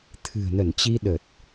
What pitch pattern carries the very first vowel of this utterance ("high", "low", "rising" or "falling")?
low